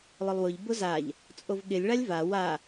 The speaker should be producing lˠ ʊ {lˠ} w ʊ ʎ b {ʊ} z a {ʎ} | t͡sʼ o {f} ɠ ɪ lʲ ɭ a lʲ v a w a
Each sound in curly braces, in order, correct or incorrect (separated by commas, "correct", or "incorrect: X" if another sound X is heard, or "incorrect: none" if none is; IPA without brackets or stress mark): correct, correct, correct, incorrect: v